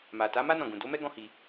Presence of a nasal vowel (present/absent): present